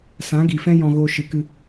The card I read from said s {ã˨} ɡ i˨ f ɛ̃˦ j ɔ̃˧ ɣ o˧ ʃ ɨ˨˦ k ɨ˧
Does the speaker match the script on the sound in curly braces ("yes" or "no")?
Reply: no